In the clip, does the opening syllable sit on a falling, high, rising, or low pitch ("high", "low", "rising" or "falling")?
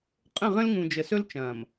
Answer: falling